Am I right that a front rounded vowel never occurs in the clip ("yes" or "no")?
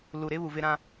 yes